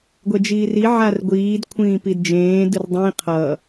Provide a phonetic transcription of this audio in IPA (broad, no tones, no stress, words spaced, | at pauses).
ɡʷɛd͡ʒiːri ʕarɡʷiːd kʷʰĩːpidd͡ʒẽː dɯrdˤĩ qʰʌ